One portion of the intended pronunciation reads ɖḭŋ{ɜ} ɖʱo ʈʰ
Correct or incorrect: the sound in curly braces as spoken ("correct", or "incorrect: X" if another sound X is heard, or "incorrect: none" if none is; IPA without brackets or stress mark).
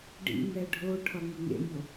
incorrect: ɛ